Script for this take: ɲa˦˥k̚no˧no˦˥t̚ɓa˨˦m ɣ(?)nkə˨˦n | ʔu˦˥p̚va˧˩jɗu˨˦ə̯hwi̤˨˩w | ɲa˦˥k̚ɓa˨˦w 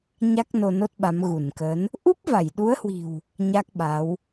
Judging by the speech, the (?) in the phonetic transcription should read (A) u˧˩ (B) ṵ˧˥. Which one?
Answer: A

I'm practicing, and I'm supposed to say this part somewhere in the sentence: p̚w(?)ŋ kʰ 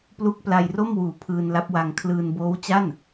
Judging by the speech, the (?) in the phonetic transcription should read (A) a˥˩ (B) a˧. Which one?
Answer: B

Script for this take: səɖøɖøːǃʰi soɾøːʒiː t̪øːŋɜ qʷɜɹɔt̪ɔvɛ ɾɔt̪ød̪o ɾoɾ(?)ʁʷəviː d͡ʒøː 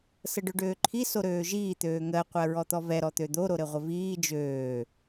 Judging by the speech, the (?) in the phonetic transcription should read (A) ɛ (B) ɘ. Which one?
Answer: B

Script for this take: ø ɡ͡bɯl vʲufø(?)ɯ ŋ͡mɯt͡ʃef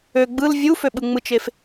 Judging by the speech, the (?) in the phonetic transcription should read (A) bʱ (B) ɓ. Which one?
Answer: B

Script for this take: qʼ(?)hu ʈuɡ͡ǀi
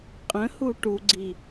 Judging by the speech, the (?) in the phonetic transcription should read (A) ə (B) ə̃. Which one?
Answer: B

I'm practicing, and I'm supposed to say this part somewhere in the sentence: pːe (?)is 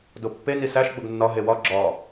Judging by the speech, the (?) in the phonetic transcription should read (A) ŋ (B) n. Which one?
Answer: B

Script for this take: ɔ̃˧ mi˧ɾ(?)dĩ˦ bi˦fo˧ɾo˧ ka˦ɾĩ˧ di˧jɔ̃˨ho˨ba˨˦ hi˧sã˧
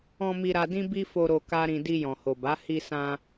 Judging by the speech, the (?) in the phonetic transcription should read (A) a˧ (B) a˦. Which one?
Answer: A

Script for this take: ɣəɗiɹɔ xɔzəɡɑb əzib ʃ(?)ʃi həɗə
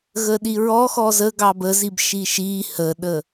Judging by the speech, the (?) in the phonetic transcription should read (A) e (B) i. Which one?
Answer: B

